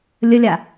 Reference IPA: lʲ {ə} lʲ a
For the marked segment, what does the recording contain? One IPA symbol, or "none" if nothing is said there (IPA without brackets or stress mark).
ə